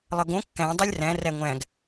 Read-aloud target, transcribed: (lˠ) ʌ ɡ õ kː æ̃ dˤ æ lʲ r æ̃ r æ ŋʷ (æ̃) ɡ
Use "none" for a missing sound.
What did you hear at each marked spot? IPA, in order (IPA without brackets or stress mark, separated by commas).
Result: lˠ, æ̃